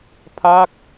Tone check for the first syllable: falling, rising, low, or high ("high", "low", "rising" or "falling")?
falling